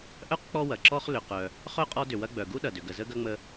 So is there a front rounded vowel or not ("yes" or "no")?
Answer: yes